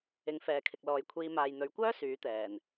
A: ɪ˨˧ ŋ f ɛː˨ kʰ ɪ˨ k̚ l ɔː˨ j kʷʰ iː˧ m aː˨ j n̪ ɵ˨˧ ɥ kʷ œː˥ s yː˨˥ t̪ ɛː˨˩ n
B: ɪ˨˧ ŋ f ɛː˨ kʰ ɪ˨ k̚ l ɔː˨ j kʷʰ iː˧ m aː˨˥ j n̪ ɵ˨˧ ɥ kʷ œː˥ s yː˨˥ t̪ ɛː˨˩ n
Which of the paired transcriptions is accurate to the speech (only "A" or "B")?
A